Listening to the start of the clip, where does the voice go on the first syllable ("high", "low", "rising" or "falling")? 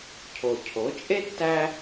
low